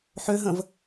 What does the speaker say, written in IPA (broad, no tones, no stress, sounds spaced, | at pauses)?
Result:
ħ ø ɦ ə̃ v